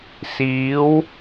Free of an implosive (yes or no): yes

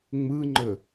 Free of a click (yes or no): no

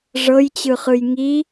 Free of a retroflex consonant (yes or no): no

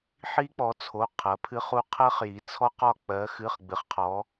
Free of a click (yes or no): yes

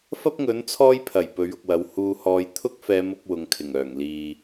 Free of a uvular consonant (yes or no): yes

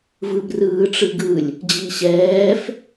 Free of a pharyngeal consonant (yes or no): yes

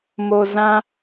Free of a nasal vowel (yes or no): no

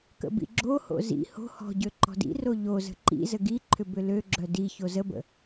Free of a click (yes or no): no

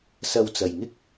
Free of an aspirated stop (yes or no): yes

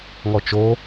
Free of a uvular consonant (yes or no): yes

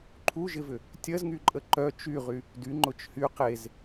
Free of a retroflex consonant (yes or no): yes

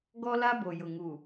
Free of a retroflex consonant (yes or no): yes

